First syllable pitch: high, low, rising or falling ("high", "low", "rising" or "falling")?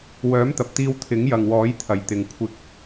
rising